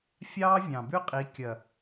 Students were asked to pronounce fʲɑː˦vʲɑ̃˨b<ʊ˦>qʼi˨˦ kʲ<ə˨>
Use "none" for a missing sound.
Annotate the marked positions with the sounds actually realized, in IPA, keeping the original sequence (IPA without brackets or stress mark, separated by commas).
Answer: ʉ˦, ɐ˨